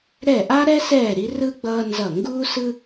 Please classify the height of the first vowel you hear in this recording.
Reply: mid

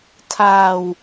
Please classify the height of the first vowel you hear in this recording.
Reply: low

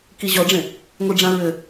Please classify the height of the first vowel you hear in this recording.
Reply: high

